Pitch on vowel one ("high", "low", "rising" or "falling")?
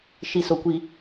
low